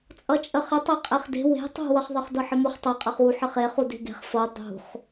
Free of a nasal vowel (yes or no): yes